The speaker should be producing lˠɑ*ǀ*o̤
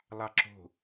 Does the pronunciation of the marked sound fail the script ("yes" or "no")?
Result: yes